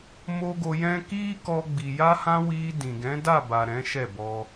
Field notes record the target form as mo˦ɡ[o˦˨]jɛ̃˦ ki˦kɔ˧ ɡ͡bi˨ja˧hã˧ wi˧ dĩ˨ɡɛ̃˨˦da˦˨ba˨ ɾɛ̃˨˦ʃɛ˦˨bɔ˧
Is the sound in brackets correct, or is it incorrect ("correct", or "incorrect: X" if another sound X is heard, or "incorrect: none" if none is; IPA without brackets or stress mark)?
incorrect: o˧